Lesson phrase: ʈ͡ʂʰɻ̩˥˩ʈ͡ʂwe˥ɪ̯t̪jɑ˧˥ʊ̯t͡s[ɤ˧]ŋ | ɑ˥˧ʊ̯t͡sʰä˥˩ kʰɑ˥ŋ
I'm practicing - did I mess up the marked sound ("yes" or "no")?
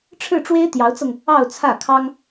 no